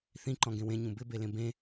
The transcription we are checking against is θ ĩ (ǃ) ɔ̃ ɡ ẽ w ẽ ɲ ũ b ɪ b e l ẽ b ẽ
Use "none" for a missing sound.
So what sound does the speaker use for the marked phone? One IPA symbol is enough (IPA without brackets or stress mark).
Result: ǃ